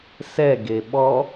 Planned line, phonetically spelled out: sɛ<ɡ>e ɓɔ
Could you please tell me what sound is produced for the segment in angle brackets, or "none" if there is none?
ɡ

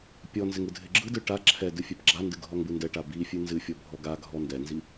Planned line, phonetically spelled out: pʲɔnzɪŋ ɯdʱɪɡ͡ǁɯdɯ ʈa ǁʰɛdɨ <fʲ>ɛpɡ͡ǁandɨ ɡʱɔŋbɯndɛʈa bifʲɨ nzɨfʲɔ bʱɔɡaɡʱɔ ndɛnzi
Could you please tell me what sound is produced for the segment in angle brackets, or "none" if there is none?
fʲ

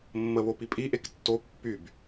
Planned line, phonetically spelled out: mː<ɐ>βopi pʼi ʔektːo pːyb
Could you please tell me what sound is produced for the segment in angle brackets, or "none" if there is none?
ə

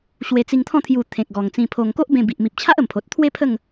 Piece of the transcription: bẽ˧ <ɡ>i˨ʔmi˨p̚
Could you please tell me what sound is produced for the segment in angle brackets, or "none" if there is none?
b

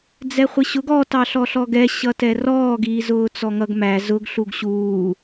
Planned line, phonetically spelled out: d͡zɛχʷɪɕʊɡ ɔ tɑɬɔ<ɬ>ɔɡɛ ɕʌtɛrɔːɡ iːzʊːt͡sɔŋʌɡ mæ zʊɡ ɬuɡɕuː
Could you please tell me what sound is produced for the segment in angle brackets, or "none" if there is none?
ɬ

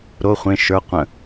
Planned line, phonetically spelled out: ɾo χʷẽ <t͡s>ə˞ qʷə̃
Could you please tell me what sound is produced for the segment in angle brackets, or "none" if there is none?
ʃ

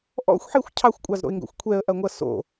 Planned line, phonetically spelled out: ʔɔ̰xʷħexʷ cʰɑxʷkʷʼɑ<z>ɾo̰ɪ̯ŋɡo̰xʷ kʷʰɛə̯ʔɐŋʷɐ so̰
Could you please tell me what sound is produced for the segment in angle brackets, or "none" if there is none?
z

